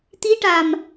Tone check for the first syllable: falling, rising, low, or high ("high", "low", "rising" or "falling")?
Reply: rising